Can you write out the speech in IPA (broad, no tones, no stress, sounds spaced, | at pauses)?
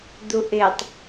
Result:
d̪ u ʔ ɪ tˤ